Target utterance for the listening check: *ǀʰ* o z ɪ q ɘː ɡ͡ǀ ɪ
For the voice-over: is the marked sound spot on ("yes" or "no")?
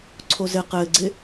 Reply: yes